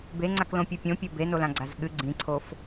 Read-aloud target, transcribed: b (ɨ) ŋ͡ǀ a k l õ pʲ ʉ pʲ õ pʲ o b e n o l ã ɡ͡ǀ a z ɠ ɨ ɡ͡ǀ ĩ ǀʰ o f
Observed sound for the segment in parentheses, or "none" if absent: e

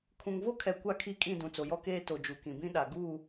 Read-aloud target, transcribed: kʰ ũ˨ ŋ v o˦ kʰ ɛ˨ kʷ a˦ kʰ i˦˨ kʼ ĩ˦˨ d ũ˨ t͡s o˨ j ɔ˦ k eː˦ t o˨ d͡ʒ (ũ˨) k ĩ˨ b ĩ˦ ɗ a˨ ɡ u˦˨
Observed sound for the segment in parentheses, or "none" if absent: u˨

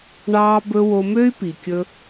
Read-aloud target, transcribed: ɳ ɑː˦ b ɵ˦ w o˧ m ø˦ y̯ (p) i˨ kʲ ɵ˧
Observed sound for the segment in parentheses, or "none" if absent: p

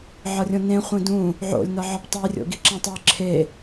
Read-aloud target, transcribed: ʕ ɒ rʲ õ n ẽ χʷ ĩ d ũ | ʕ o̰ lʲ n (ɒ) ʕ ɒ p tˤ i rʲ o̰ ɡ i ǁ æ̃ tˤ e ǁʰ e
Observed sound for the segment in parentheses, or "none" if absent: ɒ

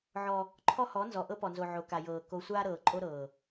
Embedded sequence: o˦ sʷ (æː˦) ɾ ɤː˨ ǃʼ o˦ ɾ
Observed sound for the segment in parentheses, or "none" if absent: aː˦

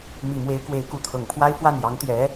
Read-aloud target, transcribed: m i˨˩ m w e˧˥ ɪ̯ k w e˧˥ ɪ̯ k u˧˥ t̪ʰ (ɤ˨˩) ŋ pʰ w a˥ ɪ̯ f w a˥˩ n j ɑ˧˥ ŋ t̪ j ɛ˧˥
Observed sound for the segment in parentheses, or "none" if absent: ɤ˨˩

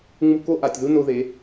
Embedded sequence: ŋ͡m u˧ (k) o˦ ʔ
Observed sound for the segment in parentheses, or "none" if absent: k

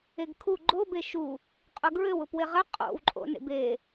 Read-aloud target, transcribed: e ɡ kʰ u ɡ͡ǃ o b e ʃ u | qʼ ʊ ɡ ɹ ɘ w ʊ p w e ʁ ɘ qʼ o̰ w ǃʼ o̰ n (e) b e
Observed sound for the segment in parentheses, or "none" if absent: ḛ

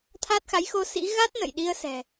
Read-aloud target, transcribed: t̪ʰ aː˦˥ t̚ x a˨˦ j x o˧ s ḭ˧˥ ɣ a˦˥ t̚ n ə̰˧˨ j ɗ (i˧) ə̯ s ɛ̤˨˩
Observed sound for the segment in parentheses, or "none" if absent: i˧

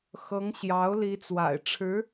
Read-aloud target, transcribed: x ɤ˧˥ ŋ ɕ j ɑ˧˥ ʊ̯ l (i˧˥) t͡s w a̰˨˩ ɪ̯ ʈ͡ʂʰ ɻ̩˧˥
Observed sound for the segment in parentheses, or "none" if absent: i˧˥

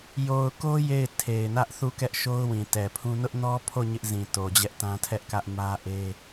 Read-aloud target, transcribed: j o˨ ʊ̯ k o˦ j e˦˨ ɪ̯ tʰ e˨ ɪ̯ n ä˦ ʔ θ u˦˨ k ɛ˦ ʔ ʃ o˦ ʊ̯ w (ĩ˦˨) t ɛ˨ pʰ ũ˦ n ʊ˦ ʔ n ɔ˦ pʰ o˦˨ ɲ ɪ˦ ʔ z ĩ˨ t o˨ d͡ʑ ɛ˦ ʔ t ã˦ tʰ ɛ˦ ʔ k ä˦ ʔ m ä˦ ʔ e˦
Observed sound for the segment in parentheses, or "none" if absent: ĩ˨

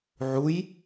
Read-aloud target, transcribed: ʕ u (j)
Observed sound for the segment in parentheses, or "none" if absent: j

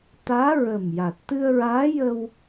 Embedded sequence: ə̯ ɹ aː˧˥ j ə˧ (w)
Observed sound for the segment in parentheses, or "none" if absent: w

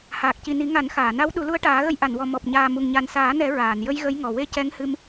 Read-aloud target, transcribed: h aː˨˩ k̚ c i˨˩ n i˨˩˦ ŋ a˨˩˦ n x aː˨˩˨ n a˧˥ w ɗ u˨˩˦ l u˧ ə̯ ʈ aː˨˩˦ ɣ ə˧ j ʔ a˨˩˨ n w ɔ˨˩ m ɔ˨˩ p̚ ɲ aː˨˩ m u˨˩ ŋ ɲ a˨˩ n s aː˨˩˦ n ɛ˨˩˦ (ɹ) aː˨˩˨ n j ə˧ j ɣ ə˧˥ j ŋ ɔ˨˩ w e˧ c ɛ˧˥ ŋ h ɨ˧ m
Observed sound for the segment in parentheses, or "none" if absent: ɹ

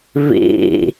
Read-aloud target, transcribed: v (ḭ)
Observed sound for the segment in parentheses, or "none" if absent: ḭ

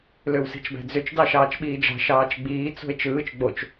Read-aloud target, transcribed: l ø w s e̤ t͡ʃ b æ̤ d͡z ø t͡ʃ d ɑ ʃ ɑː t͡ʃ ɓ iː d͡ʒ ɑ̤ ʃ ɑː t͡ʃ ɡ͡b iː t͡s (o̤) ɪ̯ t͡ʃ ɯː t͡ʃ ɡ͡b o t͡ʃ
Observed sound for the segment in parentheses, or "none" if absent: o̤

